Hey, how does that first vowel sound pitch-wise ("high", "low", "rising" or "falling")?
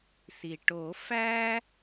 low